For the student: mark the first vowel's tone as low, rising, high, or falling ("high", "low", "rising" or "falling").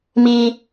high